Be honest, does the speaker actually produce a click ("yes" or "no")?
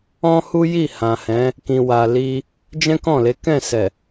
no